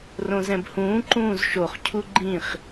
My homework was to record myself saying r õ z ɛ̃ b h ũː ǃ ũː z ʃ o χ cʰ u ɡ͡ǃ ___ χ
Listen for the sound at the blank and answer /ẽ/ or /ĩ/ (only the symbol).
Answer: ĩ